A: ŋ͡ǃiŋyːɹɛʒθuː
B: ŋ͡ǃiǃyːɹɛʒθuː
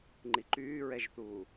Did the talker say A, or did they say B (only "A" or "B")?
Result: B